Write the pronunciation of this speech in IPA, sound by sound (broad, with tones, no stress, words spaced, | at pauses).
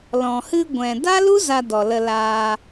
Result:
lɔ̃˨hɨ˧ɡʷɛ̃˨ da˦lu˦ za˧dɔ˨ lə˧laː˧